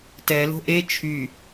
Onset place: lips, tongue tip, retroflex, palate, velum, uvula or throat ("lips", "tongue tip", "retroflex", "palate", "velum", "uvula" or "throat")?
tongue tip